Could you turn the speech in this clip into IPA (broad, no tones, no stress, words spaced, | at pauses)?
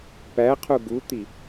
pæqʰu ɡut̪i